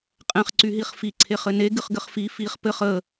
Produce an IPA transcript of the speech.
qʼɛ̃χ ǀyɦiχfi ǀʰeχɘne ɡɨχɡɘχfi fiχ pɘχ ə

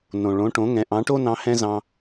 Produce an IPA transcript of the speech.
nõ˩ ɭõ˩˥ʈõ˩˥ŋɛ̃˩˥ ʔɑ̃˩˥ʈo˥nɑ̃˧ hɛ̃˥zɑ̃˧

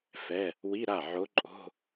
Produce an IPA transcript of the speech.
fɛ˧˥˧ | wi˧˥˧ɾa˥˩ʕo˧˥ǃʼo̤˧˥˧

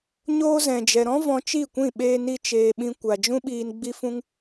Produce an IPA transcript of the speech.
ɲoː˧zɛ̃˨d͡ʒɛ˨ɾɔ̃˦ vɔ̃˧t͡ʃi˦˨kʷĩ˦˨ ɓeː˧ni˧ t͡ʃeː˧ɓĩ˦ kʷa˧ d͡ʒũ˦ɓiː˧n ɡ͡bi˦fũ˦ŋ

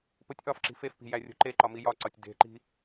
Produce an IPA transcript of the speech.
potʲʔɒfǁi̤ fefpi̤ jærʲo̤ǃeǃɒ mijɒǀɒtʲ de̤ǃi̤

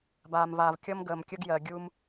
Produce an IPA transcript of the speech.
baː˨mvaː˨vkʲʌ˦m ɡəː˨mkʲə˦ɡ jɜ˨ ɡʲu˧m

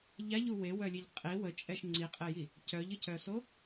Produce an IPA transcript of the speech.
ʎaʎu wewœlʲeʎ qʼi wət͡ʃʼɛʃ ŋ͡ǀiqʼeji | cœʎəcœso

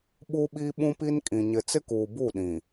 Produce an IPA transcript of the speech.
ɓu˦ɓi˦ɓũ˦pi˦n kʼĩ˨ ɲɪ˨t͡sɪ˦kuː˨ bu˦˨ɗĩ˨

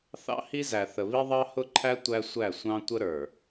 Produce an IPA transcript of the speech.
θɑ̰˦hi˦zæ˨ θə˨βi˦ ðˤɑ˦hʊ˦ǃʰæ˦ tʷæ˦sʷæ˦˨sʷɑ̃˦ tʷə˦ɾə˞˨

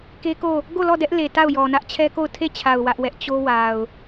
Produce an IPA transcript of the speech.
ke˦ko˦˨ | ɡo˦˨lɔ˦˨ dɛ˦ʔle˨ ta˦˨ʊ̯jɔ˨nä˦ʔ t͡ɕʰɛ˦ko˦˨ʊ̯ tʰe˦˨t͡ɕʰa˨ʊ̯ wä˦ʔwɛ˦ʔ t͡ɕo˦wa˨ʊ̯

